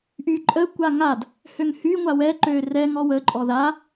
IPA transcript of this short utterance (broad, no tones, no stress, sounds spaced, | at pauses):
ʔ y ǃʼ ə kʷ a ŋ a d | h ø ŋ h y ŋʷ a w ɛ ǃ ø r ɛ ŋ ɔ w ə ǃʼ ɔ ð a